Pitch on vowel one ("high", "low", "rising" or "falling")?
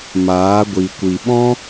rising